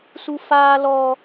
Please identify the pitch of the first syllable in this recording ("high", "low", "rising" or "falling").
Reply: high